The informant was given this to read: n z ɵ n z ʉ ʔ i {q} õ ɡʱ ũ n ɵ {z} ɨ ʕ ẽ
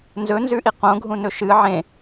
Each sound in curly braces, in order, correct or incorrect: correct, incorrect: ʃ

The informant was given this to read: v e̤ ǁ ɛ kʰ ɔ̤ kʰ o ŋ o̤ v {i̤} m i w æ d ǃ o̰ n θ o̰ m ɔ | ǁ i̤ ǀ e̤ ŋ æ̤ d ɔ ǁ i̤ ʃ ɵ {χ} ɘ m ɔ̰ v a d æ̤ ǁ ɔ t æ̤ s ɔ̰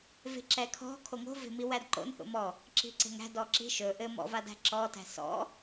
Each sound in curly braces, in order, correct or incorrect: incorrect: e̤, incorrect: ʔ

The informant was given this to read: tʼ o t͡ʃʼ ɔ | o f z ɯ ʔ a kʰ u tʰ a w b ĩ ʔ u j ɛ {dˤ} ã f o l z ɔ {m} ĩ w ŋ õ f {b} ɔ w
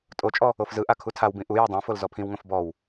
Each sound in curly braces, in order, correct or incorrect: correct, incorrect: pʰ, correct

